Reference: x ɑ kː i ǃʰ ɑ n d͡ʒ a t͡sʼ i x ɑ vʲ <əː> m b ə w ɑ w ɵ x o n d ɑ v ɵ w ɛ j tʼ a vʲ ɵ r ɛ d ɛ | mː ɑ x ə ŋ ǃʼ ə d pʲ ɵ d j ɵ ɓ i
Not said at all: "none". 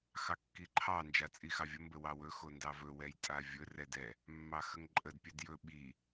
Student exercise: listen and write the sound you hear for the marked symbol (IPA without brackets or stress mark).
ə